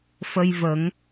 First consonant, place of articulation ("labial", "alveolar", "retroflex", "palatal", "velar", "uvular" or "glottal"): labial